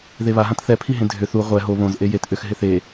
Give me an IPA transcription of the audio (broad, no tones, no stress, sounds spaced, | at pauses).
ð e β a ɦ ã t θ ɛ pʰ i ɦ ẽ dʱ ʏ θ u ʁʷ ɛ ɦ o β õ z ʔ e j e t ʔ ʏ x ɦ ɪ θ e